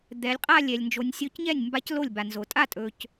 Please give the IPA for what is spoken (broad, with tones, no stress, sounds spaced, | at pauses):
d̪ ɛ˩˧ lʲ qʼ a˥˧ lʲ ɛ˩ lʲ n d͡ʒ o˩˧ nʲ sʲ o˧˥ c ɲ ɛ˥˩ nʲ m b a˧˥ c l o˥˩ lʲ b a˩ n z o˩ tʼ a˥˩ tʼ ɵ˩ c